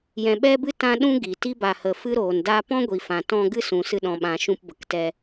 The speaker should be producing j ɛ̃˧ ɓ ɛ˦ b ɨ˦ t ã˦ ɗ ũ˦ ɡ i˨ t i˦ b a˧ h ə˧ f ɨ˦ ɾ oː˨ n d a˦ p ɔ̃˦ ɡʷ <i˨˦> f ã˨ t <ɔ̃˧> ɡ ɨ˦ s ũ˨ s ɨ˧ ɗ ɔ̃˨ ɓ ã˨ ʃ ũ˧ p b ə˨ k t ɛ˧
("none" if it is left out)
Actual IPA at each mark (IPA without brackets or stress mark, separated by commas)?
i˨, ɔ̃˧